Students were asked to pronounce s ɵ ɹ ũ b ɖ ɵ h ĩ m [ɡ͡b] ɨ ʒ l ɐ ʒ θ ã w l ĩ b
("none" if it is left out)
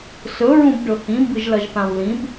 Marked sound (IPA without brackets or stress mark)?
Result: b